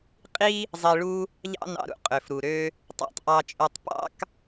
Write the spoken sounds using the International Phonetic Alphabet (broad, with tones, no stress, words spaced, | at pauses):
qʼi˥ | zˤi˧ɭu˥ | ʎɑ̰˥nɑ̰˧ɾṵ˧ qʼø˩fɾu˩ ɾø˧ | tˤæ̰˧tˤʔɑ˧t͡ʃʼø˧tˤ pɑ̰˥k